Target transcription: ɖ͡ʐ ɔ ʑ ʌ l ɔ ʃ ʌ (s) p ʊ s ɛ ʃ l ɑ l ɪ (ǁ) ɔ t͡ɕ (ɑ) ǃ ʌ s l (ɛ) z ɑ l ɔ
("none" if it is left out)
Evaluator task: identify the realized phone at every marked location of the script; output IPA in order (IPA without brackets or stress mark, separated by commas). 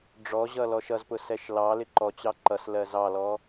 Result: z, ǃ, ɑ, ɜ